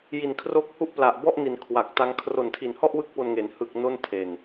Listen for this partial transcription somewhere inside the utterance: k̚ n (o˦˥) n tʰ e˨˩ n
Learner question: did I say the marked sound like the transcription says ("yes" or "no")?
no